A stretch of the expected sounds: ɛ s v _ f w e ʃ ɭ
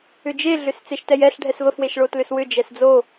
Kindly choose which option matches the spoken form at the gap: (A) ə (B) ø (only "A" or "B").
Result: A